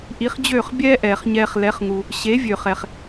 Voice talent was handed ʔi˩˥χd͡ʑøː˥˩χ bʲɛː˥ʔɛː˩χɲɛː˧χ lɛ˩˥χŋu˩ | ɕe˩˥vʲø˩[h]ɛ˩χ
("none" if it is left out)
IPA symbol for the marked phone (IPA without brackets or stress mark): χ